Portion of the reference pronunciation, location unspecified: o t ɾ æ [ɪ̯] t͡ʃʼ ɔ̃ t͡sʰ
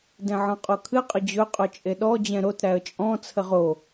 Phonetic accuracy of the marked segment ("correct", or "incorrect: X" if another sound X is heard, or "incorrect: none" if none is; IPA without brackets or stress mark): incorrect: ə̯